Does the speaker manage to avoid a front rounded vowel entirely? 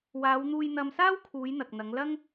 yes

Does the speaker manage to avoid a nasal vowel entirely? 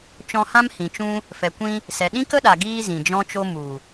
no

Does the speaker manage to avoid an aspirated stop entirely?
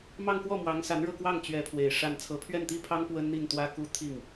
no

